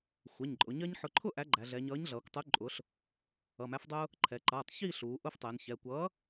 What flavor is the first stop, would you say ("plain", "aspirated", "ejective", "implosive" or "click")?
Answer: click